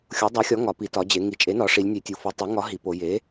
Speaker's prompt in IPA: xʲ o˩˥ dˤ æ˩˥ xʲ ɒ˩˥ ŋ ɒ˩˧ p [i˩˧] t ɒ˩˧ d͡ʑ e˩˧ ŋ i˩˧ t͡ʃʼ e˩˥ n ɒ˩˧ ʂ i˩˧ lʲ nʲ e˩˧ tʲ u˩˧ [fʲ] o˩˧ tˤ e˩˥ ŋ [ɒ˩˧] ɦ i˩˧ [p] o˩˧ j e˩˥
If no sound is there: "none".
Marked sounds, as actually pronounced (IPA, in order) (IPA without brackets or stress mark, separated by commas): i˩˧, f, ɒ˩˥, p